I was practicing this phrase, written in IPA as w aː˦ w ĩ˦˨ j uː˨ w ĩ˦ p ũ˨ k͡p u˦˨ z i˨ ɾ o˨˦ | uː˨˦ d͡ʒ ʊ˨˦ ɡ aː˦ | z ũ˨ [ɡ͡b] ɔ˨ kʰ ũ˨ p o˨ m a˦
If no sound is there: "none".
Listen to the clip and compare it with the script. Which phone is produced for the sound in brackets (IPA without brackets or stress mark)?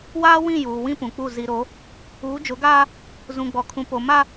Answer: ɡ͡b